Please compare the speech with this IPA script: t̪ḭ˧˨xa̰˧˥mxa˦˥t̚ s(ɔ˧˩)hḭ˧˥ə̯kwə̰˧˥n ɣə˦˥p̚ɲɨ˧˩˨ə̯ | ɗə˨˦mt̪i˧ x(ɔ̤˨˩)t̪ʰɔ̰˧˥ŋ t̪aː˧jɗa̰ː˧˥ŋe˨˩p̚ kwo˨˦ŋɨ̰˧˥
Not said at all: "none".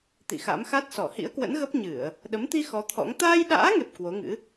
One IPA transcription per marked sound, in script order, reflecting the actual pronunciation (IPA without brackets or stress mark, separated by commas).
ɔ˧˩, ɔ˨˦